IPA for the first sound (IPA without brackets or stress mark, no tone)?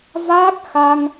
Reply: v